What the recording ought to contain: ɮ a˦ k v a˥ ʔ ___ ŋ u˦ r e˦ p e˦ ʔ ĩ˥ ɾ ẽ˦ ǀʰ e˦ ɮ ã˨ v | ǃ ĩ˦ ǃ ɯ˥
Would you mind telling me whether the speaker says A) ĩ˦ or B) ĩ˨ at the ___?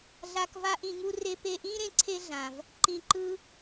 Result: A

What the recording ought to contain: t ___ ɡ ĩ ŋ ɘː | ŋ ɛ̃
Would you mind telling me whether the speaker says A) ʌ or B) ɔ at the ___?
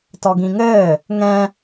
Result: B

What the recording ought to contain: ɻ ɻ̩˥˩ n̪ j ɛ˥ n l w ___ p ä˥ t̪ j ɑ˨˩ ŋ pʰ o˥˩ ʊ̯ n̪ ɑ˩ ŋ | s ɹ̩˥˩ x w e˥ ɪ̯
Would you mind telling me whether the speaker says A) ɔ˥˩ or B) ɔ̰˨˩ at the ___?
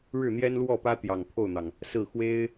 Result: A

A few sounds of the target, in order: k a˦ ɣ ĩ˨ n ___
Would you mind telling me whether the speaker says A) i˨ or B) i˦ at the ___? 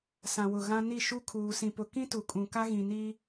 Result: B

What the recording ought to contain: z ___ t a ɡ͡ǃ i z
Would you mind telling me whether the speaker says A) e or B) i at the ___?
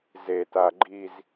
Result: A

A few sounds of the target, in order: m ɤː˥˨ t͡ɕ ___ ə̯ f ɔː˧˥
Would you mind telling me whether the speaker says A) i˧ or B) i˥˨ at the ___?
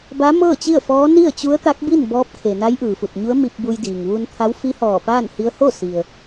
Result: B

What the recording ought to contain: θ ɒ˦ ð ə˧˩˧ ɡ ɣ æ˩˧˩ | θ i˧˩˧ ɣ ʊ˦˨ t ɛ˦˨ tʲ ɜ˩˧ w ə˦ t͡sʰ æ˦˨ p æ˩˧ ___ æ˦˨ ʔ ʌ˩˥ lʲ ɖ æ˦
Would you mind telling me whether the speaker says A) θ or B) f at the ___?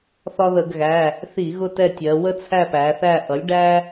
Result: A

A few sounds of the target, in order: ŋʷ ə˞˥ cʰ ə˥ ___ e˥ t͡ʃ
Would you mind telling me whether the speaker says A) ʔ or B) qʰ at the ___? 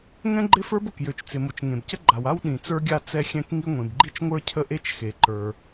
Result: A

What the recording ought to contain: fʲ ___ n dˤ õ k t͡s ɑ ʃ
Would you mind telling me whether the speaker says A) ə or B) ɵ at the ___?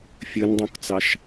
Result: B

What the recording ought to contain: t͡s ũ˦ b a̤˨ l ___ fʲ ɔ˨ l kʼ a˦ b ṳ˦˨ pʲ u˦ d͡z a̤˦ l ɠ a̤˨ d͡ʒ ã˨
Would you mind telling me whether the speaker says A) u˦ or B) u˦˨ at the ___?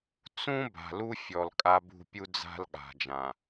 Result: A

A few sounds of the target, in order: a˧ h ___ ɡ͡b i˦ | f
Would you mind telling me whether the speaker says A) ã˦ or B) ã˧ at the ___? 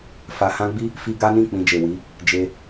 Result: A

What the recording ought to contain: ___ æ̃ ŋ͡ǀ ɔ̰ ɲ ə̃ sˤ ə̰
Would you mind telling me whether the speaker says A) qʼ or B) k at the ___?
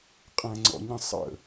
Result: A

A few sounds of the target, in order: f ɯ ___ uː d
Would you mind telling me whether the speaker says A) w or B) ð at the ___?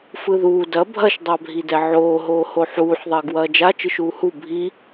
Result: B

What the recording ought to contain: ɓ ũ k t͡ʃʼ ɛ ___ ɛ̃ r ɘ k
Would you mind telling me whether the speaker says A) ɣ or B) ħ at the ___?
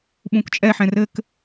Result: B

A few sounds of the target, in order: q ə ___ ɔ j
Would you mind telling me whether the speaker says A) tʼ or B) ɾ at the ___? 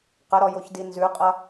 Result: B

